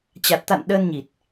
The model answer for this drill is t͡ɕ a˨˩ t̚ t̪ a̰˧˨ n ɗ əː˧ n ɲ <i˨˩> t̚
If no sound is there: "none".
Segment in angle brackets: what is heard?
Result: i˨˩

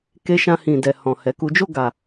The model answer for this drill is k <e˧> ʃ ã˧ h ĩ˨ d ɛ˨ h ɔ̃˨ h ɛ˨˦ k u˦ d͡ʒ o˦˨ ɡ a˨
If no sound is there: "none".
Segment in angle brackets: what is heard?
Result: e˧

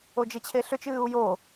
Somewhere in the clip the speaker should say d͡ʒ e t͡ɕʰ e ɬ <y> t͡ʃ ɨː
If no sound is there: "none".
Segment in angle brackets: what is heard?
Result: ʏ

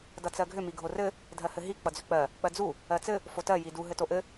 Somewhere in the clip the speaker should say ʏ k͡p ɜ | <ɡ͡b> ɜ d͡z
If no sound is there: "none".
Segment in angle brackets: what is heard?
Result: k͡p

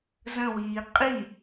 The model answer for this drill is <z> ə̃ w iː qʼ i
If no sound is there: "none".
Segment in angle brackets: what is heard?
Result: z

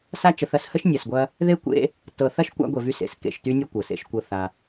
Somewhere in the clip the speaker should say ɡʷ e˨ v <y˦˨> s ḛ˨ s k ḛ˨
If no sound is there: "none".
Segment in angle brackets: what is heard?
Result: y˦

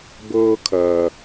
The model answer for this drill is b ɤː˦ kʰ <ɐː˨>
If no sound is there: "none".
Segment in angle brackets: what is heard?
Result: ɐː˨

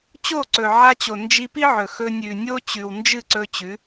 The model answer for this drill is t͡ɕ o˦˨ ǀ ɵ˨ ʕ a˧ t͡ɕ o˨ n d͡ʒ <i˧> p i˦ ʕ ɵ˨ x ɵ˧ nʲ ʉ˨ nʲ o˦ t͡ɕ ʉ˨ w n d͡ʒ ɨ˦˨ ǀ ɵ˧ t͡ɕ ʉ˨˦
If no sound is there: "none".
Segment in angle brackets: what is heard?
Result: i˧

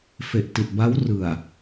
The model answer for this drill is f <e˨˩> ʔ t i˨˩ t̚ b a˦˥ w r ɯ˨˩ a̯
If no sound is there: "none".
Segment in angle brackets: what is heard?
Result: e˨˩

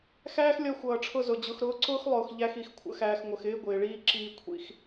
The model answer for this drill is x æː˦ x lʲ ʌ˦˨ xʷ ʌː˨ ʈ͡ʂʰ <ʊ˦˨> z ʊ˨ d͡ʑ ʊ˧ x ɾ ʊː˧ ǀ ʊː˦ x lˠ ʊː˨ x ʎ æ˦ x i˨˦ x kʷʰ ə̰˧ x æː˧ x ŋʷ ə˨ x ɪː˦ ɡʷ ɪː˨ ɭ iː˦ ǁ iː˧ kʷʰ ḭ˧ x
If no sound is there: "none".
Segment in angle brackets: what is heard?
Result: ʊ˦˨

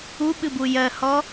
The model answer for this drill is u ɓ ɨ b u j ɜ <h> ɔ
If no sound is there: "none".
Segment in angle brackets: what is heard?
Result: h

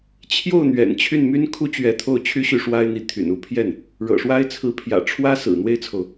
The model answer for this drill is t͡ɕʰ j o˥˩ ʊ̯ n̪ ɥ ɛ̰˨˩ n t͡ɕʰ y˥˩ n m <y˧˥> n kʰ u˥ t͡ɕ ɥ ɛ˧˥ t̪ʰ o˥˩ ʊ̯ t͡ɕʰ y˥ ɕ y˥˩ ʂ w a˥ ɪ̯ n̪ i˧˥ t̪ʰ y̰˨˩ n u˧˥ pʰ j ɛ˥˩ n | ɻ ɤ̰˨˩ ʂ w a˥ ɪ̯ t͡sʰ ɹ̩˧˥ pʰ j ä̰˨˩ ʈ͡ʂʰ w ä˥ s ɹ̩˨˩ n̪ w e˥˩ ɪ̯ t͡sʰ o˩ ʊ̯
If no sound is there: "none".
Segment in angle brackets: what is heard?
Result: y˥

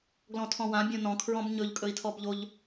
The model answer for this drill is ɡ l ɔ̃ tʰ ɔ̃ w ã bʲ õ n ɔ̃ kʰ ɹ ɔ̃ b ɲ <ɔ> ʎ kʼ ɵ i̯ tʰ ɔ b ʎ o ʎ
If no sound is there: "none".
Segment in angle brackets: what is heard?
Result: ɵ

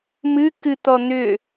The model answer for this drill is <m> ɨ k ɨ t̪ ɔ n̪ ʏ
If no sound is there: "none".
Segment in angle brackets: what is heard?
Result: m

